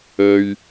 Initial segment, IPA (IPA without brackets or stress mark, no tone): ɵ